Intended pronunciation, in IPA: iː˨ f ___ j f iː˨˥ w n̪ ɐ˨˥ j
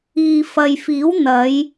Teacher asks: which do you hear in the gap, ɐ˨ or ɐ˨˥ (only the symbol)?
ɐ˨